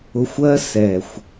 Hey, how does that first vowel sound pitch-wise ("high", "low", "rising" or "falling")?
low